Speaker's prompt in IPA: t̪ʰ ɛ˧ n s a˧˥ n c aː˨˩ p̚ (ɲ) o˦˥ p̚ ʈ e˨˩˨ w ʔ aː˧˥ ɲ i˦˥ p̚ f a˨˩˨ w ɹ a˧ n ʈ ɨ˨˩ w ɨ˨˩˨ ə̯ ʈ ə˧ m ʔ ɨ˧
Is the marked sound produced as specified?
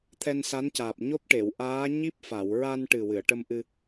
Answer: yes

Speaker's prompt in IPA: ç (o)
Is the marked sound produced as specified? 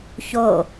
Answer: yes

